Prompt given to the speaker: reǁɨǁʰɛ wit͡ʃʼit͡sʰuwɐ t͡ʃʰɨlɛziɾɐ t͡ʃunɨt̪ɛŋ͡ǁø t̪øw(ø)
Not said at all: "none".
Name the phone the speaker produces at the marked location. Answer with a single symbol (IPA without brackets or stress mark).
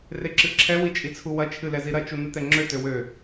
ø